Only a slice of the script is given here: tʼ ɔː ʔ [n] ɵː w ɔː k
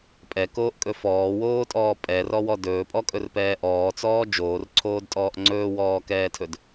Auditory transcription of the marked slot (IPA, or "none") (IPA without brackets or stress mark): ŋ͡ǀ